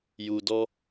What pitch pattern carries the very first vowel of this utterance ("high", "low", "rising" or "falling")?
low